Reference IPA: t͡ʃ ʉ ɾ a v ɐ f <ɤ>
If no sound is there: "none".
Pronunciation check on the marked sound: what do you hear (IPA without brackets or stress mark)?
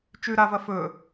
ɵ